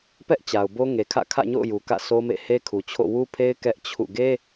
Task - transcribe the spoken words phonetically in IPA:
p ɛ˦ ʔ t͡ɕ a˨ ʊ̯ b o˦ ŋ e˨ kʰ ä̰˦˨ kʰ ä̰˦˨ ɲ o̰˦˨ ʊ̯ j u˨ k ä̰˦˨ sʰ o˦ m ḛ˦˨ h e˦ kʰ u˨ t͡ɕʰ o̰˦˨ w u˦ pʰ e˦ ɪ̯ k ɛ˦ ʔ t͡ɕʰ ṵ˦˨ ɡ e˦

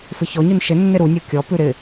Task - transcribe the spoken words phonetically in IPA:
f ɪ ç ɔ ɲ ʉ n ʃ ɪ nː ɪ ɾ u nʲ o kʲ ɔ p ʉ ɾ ɪ

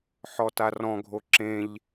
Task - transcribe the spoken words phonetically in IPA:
ħ ɔ t a r ɔ̃ ɡʱ o ǁ ẽ ʎ

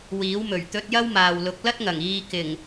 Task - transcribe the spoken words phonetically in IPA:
w iː˨˥ w m ɵ˨˩ ɥ t̪ ɵ˧ t̚ j ɐ˥ w m aː˨ w l ʊ˨˥ k̚ l ɐ˥ t̚ ŋ ɐ˨˩ ŋ iː˧ k ɪ˨˩ ŋ

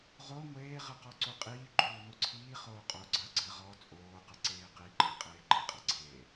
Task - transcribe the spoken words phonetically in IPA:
ʁ o ŋʷ eː ʁ ɨ q ɔ ǀ u qʼ iː ɡ͡ǃ uː n u ǀʰ iː χ oː qʼ o ɡ͡ǀ ɐ ɡ͡ǀ ɘ ʁ ɔ t͡sʼ oː q ɨ ǀ eː q i ǃʰ ɘ qʼ eː ɡ͡ǃ e qʼ ɐ ɡ͡ǀ eː

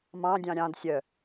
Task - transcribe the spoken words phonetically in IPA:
m ɑ̃ dʲ ɑ̃ ɾʲ ɑ̃ d sʲ œ

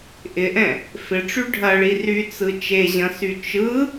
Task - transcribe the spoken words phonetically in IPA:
ʔ ɪ ʔ ɛ̃ | f ɪ ʈ͡ʂ y ɖʱ ɐ ɭ i r y t͡s ɯ t͡ʃ e ʑ ɐ̃ s y t͡ʃ ɯ

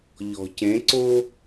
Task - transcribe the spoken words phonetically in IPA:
ʎ ɔ̤˩ c ẽ˩˥ ǀ o˥

